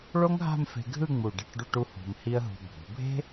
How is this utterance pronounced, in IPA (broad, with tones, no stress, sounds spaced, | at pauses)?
ɭ o˥ ŋ ɦ a̤˥˧ m f e̤˧ ɡʱ ɯ˥˧ ŋ͡m u˧˩ ɖ e̤˥˧ ʈ ɖ u˥˧ ʈ u˥ h ṳ˧ m h i˥ ə̯ ɦ ṳ˧ bʱ ṳ˩˧ bʱ e̤˥